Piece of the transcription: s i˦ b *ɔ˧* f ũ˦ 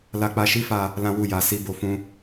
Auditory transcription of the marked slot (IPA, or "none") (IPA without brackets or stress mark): o˧